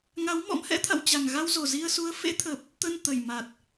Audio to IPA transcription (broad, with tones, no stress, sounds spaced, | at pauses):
ŋ a˨˦ w m ɔ̰˧˥ m h ɛ̰˧˥ t̪ʰ a̰˧˨ w t͡ɕ a˨˩ ŋ ɣ a˧ w z o˨˩ z i˧ ə̯ s u˨˦ ə̯ f ḛ˧˥ t̪ʰ ə˨˩ p̚ | t̪ ə˧ n t̪ ə˨˩ j m a˨˩ t̚